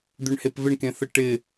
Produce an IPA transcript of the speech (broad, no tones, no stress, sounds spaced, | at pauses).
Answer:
d̪ ø ɳ h e p v ɪ ɳ k ẽ θ ə ʈ ɪ